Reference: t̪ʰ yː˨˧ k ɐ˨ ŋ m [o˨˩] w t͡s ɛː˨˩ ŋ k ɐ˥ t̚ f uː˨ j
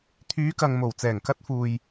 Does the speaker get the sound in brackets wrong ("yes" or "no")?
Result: no